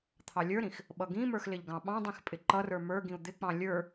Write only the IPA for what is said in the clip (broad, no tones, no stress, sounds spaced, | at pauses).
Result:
t̪ʰ ɑ lʲ ə˞ ɾ ĩ x | ɓ ʌ ɡ ĩ m ə˞ x l ɪ ʎ ɡ ɑ̃ ɓ ɑ̃ dˤ ĩ x pʼ ɪ ǃ ʌ r ə˞ m ə˞ ɡ ĩ u̯ d̪ ɪ k͡p ɑ̃ lʲ ə˞